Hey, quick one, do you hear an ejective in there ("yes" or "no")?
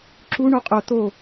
yes